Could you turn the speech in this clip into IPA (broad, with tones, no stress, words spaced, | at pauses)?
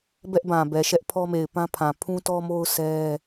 bɛ˦ʔbã˨bɛ˨ʃɛ˦ʔ pʰɔ˦me˨ɪ̯pã˦pʰã˨ pʰũ˦tɔ˦mo˦ʊ̯ sɛ˦